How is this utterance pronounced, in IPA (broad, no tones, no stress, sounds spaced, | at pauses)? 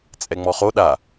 t͡sʼ ɛ ŋ͡m ɔ χ o ɗ a